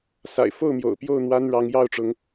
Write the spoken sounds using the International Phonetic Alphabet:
sa̰˨˩ɪ̯ fo˥˨ʊ̯ mjo̰˨˩ʊ̯ pjo˥˨ʊ̯ n̪wa˦nɻɑ˨˦ŋ jɑ˥˨ʊ̯ʈ͡ʂʊ˨˦ŋ

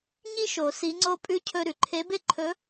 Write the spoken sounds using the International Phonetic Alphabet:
ɲi˥ʃo˨˩˦ si˧˥ŋ͡ǀo˥pʼʉ˥ cʰɵ˧ ɾʉ˩ǃʰe˧˥be˥ ǃʰɵ˧˥

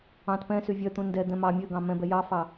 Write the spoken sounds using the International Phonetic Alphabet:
ɑ̃t pɛ̃sy vʲœt̪ũ ndɛd̪ɛ̃ mɑ mʲøɡɑ̃ mɛ̃bɛ jɑfɑ

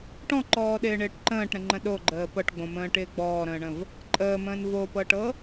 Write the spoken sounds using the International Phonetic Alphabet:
ʈɔ̃ǃɔːɗɪːɳɪːʈ ǃə̃ːʈɾə̃ŋ͡ǃə̃ ɗoɡ͡ǃəː pɤʈɡ͡bõmə̃ːʈɪː ɡ͡bɔːɾə̃ːɳə̃v | ǃʼəːmə̃ːn vopɤʈɤ

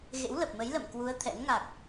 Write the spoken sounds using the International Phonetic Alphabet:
ɣḛ˧˥wlə˨˩p̚mə˨˦j lə̰˧˨mkwu˨˦ə̯ t̪ʰɛ̰˧˥n ŋa˨˩k̚

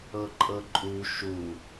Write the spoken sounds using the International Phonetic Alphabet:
ɤǃʼɤǃʼu ʃu

